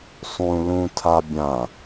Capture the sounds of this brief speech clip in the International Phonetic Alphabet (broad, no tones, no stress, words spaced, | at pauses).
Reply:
sˤũ lũtʰa bʲã